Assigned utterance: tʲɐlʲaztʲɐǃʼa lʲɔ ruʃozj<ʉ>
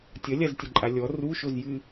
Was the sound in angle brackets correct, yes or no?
no